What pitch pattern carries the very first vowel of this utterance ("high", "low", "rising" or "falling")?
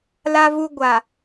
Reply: low